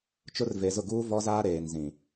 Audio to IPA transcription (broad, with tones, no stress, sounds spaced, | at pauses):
t͡ʃ ʊ˦ r v e˨ z ʊ˦˨ ɡ uː˦ v ɔ˦ z aː˦ ɾ eː˨ n z ĩ˨